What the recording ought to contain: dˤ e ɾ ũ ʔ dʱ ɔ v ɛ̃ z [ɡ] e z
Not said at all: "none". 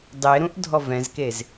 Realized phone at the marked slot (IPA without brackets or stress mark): k